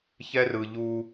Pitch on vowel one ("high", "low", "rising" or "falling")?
high